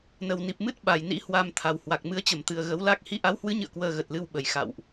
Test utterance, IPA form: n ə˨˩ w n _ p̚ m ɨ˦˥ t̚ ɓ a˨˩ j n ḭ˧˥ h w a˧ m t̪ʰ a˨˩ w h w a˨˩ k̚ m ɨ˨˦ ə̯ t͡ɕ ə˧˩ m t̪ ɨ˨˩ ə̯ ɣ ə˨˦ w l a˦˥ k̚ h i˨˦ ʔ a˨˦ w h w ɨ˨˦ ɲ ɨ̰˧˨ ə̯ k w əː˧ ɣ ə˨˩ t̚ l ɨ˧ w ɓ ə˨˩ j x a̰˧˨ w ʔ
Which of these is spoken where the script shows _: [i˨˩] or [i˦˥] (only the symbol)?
i˨˩